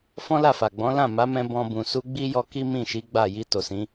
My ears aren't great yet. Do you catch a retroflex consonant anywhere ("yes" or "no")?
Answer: no